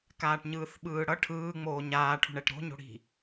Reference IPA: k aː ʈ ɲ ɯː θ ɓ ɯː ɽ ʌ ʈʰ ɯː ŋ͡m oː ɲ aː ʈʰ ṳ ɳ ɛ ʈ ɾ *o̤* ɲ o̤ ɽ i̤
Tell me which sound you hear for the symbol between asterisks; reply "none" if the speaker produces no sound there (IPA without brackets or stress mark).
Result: o̤